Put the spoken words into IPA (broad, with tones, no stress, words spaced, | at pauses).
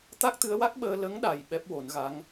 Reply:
t̪a˦˥k̚t̪ɨ˧˥ə̯wa˦˥k̚ɓəː˧ lə˧˥ŋɗa˨˩j ɓɛ˦˥p̚wo˨˩˦nɣa˧˥ŋ